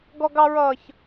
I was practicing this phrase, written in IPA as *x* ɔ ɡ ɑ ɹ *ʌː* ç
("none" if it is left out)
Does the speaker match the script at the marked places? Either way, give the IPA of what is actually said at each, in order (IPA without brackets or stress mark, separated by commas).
ɡ, ʌː